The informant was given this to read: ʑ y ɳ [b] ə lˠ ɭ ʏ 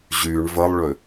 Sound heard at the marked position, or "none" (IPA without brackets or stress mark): v